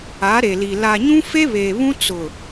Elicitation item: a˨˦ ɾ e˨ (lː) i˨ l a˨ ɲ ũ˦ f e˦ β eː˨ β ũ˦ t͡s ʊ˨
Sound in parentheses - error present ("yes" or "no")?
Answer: yes